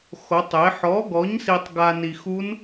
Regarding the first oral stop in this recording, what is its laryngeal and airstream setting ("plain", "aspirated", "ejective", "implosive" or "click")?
plain